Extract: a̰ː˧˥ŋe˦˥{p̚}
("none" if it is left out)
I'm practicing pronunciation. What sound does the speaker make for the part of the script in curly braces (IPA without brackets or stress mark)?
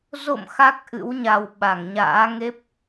p̚